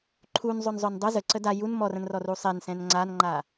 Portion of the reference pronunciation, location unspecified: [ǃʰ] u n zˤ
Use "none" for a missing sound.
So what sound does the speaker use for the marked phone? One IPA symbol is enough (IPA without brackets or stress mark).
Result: ǃʰ